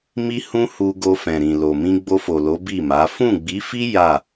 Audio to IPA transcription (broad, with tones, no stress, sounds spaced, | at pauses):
m i˦ h ũ˦ h u˧ ɡ o˧ f ɛ̃˨ ɾ ĩ˨ l o˨ m ĩ˧ ɡ͡b o˧ f o˨ l o˨˦ b i˦˨ m a˨˦ f ũ˦˨ ɡ͡b i˨˦ f i˦ j a˦˨